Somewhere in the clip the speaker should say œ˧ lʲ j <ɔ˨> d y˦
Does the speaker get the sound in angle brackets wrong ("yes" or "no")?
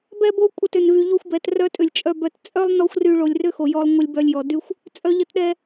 no